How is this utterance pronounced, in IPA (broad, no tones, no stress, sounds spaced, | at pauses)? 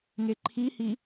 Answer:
ŋ e ǃʰ i h i